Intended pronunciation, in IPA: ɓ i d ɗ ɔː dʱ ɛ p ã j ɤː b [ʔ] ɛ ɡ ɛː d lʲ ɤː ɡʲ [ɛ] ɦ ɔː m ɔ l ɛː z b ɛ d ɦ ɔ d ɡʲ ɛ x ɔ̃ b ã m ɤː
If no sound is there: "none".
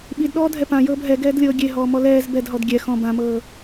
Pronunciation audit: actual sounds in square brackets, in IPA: ɦ, e

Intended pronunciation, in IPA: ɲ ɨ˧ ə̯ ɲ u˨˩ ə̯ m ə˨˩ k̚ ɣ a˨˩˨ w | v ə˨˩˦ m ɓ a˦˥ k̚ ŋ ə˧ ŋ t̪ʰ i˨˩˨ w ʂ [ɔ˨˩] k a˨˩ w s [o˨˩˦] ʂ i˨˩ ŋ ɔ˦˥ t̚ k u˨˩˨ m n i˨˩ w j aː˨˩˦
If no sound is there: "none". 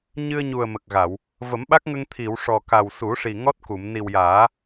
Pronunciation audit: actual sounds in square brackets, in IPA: ɔ˨˩, u˨˩˦

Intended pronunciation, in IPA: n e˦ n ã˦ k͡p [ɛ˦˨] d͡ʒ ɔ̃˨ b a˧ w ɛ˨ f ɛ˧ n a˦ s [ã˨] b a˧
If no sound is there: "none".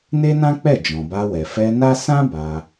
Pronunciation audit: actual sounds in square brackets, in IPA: ɛ˦˨, ã˦

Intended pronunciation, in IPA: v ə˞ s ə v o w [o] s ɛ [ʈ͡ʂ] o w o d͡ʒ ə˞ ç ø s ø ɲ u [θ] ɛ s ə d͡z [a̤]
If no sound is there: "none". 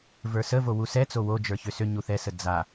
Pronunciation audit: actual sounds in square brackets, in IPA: u, t͡s, θ, a

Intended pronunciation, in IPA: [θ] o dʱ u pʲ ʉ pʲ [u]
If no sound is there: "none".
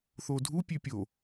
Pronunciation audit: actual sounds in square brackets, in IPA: θ, o

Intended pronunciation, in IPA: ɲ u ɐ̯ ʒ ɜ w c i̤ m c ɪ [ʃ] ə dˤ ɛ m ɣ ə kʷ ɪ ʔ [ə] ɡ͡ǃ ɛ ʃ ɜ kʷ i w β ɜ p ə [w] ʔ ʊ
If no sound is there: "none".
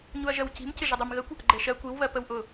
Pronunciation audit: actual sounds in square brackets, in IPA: ʒ, ə, w

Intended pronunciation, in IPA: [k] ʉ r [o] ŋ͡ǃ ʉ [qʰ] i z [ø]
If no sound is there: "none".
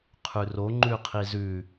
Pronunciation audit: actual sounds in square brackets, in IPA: qʰ, o, qʰ, ʉ

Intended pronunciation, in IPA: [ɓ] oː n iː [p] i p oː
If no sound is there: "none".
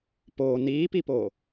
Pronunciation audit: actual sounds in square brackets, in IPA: p, p

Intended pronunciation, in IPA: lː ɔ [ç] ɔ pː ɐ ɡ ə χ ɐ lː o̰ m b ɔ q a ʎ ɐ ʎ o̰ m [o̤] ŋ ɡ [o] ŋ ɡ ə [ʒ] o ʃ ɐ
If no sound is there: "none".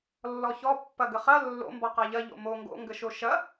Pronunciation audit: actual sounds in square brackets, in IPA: ç, o, o̰, ʃ

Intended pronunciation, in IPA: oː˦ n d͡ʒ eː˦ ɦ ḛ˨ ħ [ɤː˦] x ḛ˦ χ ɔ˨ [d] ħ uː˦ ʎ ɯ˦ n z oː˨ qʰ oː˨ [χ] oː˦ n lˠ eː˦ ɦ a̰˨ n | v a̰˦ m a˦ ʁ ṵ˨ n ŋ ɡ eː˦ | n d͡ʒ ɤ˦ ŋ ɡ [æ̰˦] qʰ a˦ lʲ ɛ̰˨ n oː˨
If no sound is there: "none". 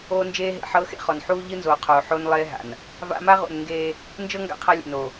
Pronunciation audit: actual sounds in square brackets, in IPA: ɤː˦, n, ħ, a̰˦

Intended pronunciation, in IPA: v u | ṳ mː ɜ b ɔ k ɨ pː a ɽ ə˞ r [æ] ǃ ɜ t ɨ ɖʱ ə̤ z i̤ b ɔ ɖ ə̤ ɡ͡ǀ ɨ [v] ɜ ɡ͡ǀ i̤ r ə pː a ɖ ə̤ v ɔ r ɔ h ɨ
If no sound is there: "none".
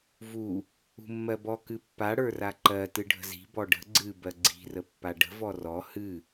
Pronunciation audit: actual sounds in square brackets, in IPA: a, b

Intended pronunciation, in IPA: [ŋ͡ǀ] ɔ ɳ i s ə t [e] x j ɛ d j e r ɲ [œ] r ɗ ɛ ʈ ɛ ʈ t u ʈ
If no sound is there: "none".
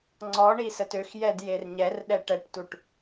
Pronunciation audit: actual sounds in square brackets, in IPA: ŋ͡ǀ, ø, ɛ

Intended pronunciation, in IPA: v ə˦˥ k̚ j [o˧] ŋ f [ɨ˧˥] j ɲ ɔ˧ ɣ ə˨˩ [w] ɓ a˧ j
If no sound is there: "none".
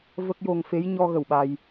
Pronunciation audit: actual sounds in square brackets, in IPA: o˧, e˧˥, w

